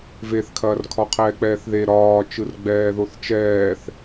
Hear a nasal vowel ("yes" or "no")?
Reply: no